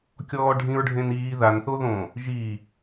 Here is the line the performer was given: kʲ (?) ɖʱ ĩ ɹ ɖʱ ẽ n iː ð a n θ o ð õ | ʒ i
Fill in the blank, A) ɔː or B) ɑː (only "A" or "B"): A